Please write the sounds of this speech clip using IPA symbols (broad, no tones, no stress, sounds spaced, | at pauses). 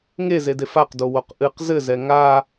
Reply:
ŋ e z e d e f a q d o w o q ʔ ɨ q z ɘ z ɛ ŋ a